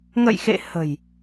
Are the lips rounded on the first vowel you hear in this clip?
no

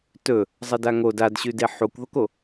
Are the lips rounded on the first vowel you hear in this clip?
yes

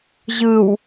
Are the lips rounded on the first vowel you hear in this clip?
no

